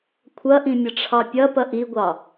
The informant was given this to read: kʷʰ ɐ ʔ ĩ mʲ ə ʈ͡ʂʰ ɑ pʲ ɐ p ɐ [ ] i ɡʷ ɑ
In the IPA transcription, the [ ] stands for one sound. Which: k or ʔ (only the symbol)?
ʔ